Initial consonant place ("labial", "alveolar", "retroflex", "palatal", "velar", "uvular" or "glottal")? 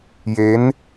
palatal